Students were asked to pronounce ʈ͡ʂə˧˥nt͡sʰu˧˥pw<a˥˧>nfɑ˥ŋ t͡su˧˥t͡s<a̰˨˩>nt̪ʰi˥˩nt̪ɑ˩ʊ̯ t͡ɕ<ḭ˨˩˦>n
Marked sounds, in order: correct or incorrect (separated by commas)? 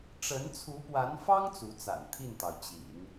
incorrect, correct, correct